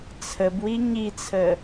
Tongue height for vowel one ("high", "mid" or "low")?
mid